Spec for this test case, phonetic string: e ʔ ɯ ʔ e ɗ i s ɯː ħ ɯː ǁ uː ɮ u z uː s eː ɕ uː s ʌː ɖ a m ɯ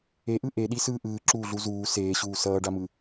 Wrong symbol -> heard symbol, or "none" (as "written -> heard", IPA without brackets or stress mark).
ħ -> ʔ